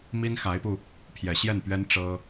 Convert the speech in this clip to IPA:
mi˥nxa˧˥ɪ̯pu˧ | pʰjɛ˨˩ ɕjɛ˥˩npɥɛ˥n ʈ͡ʂɤ˥

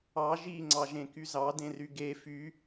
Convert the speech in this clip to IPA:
ɑ ʒiŋ͡ǀɑʒẽky zɑdẽry ɡe fy

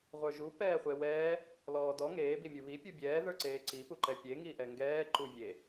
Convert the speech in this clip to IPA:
ʁʷə˞ʒu pɛːχʷewɛː | lɔːdɔ ŋeː bimʲuβi pʲubʲɛː ðə˞ǀeːǀi puǃɛpʲe ŋiʔɛŋɡɛː ǃuvʲe

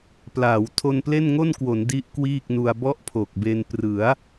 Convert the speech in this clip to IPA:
plaː˩˦w tʰo˧nple˥˩nŋo˥˩nkwo˩˦n di˦˥ʔ kwiː˥˩k̚nu˧a̯ bɔ˥˩ʔpʰo˨˩k̚be˧n prɯ˩˦a̯

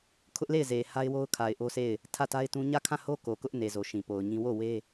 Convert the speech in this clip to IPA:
kʰʊ˦ʔle˦˨ɪ̯ze˨ha˦ɪ̯ wo˦ʊ̯kʰa˨ɪ̯ʔo˦se˦˨ɪ̯ | tʰä˦˨ta˦ɪ̯tũ˦ ɲä˦˨kʰã˦˨ho˦ ko˨kʊ˦ʔne˨ zo˨ʃĩ˨po˨ʊ̯ɲĩ˦ wo˦˨we˦

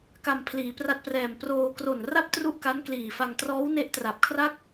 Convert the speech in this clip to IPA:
ka˧mpʰliː˩˦pra˦˥t̚prɛː˨˩m proː˧ kro˨˩nra˥˩p̚ tru˥˩ʔka˦˥nkliː˨˩fa˧ŋ trɔː˦˥w ne˦˥ʔtra˨˩p̚kʰra˥˩k̚

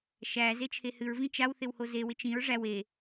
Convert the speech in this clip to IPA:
ʃæ zet͡ʃʰehɨɹvĩ t͡ʃawθɪw hozewɪ t͡ʃĩɹ ʐæw e

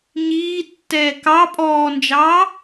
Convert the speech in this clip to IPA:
ɲiːtːɛː kɑ pʼɔːnd͡ʒɑː

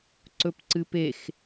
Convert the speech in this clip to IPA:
ǀɵpǀɨpex

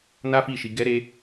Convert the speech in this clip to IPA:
na˦fi˦˨ʃi˧ ɡɛ˦ɾe˦

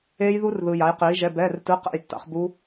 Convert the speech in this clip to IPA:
eː˦˥jðu˦˥rðɯ˨ ja˨˥jqiː˨˥ʒɛ˧˥˧ bɛː˧˥˧rtɯ˧˥˧ qɛ̰˥˨jtːa̰˨˥χ bu˦˥

